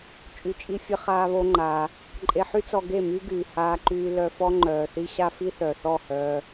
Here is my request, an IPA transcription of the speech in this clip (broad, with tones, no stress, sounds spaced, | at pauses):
t͡ʃʼ y˨ t͡ʃʼ i˧ fʲ ə˧ χ aː˧ β o˦ ŋ͡ǃ aː˧ | ǃʼ e˧ ħ y˦ t͡s ɔ˧ ɡ e˦˨ m y˦ ɡ yː˨ h aː˧ ǃ yː˧ l œ˧ f ɔ˦ ŋ͡ǃ œː˨ θ i˦ ɕ a˦ f i˦ θ œ˨ θ ɔ˦˨ h œː˧